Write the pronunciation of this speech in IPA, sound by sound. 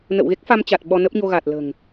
n ə̰˧˨ w ɣ e˦˥ k̚ f a˧ m t͡ɕ a˨˩ t̚ ɓ ɔ˧ n ə˦˥ p̚ ɲ o˧ ɣ a˨˩ t̚ l ə̤ː˨˩ ŋ

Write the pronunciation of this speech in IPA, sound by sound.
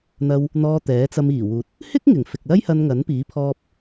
n̪ ɐ˧ w | n̪ ɔː˧ t̪ ɛː˨˥ t͡s ɐ˧ m iː˨˩ w uː˨ t̚ | h ɪ˥ k̚ ŋ ɪ˨˩ ŋ f ɪ˨ k̚ l ɐ˥ j h ɐ˧ n ŋ ɐ˨˥ n p iː˨˥ pʰ ɔː˧ p̚

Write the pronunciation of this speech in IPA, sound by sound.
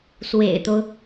s w ḛ˨˩ ɪ̯ t̪ o˦ ʊ̯

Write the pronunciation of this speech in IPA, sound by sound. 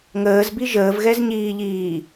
ŋ əː z b i ʒ əː v ɣ ɛ z ɲ iː ʎ iː

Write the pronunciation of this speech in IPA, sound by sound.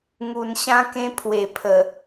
ŋ u˨˩ n ɕ ã˦ k ẽ˦ pʰ w e˨˩ pʰ ə˨˩

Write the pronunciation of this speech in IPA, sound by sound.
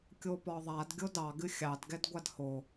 kʲ o p ɒ ðˤ a d ɡʲ o d ɑ ɡ ɨ xʲ ɑ d ɡ ɛ d ɡʷ a d h o

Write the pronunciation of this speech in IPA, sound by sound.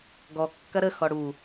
ɡ ɔ kː ɐ ɾ ə x ɔ ɽ u

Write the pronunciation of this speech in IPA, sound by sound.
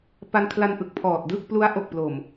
p a˧ n kʰ l a˧ n ʔ ɯ˨˩ k̚ pʰ ɔː˨˩ t̚ d ɯ˥˩ k̚ p l u˦˥ a̯ ʔ o˨˩ k̚ p l o˨˩ m

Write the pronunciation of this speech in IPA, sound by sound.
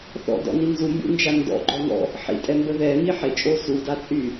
θ ɔ̰ d ɔ̰ n i n z u m b ṵ n d͡ʒ a n d ɔ̰ ɡ͡ǃ ɔ ŋ ɔ̰ | ħ ḭ tʼ ɛ m b ə ð ɛ m i ħ e t͡ʃʼ o s u d a t͡sʼ y

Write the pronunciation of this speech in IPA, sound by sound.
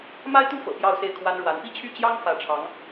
m a˥ ɪ̯ t̪ u˥ f ɤ̰˨˩ p j ɑ˥˧ ʊ̯ s e˥˩ ɪ̯ kʰ w a˥ n ɻ w a˧˥ n p i˥ t͡ɕʰ y˥˩ t͡ɕ j ɑ˥ ŋ f ä˧˥ ʈ͡ʂʰ ɑ˧˥ ŋ

